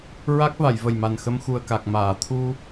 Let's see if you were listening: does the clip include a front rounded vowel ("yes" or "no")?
no